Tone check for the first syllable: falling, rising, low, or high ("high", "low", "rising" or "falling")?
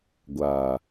low